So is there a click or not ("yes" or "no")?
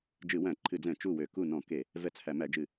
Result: yes